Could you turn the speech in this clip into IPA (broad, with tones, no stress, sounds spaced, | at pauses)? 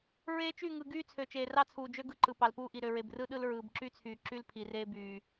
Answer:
ɹ eː˦ t͡ʃ y˦˨ ŋ ɯ˨ ɡ yː˦ t͡sʰ ø˨ t͡ʃ eː˨ r ɑ˦ t͡sʰ uː˨ d͡ʒ ø˦ ɡ ɯ˦ ǃ ɯ˨ p ɑ˨ l p uː˦ ʔ i˨ ɾ ø˨ ɹ e˨ b r ɯ˦ ɗ ɯ˦ l ɹ ɯː˨ b ǁ y˦ t͡sʰ yː˨ ǁ y˦ l pʰ i˨ r eː˦ b yː˨